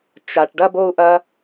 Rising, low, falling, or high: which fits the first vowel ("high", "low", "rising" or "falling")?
high